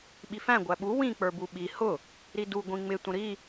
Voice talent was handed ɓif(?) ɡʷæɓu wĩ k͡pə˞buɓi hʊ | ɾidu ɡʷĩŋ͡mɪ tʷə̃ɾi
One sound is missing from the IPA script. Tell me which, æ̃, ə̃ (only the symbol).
æ̃